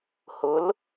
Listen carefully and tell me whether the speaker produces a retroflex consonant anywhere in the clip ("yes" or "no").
no